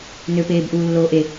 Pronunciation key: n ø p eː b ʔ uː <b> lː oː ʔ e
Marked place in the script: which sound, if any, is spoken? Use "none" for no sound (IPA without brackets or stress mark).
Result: none